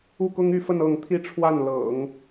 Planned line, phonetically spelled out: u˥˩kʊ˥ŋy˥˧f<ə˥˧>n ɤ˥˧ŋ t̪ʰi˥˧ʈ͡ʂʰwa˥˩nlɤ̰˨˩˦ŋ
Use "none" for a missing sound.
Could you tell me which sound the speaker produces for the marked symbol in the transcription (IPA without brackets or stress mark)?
ə˥˧